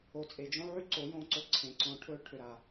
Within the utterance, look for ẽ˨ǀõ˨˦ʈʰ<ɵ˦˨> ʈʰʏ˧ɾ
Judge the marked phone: correct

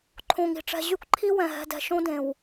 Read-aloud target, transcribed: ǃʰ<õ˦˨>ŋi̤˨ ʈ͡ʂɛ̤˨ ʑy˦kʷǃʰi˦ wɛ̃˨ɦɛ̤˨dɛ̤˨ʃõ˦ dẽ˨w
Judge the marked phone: incorrect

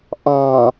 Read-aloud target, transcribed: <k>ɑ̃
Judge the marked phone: incorrect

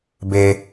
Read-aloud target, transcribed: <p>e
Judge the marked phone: incorrect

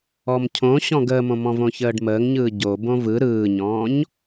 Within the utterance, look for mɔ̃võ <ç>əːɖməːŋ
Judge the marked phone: correct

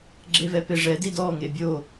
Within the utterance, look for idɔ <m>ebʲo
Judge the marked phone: incorrect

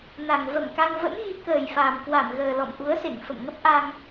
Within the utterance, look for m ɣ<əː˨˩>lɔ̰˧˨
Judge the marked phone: correct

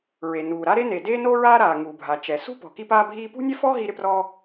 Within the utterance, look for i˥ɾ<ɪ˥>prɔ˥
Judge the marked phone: correct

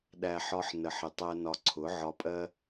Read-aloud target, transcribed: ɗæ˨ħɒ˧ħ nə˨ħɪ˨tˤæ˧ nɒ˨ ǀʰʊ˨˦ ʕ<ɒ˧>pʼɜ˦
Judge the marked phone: correct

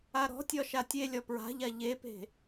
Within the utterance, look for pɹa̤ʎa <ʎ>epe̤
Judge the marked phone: correct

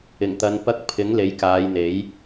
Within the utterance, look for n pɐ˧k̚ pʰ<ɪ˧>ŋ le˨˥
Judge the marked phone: incorrect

